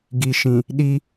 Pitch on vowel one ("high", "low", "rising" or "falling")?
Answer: low